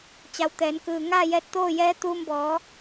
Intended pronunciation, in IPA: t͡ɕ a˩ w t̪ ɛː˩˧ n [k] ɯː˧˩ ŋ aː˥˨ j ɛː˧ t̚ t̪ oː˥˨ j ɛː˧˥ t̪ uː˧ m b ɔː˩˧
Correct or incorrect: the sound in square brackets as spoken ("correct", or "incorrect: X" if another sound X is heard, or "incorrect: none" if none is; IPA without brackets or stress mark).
correct